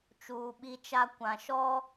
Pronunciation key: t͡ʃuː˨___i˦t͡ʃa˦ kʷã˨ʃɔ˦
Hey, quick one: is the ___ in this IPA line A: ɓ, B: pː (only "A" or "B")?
A